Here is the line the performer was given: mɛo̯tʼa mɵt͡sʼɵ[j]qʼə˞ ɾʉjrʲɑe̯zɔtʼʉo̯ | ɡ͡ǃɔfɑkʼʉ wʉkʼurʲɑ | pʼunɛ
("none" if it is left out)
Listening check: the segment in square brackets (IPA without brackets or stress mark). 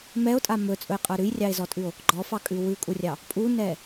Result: j